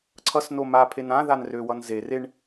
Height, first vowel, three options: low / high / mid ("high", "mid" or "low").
mid